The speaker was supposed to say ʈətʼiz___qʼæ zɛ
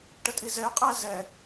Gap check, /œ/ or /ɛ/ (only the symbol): ɛ